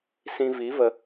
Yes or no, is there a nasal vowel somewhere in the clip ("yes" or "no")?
yes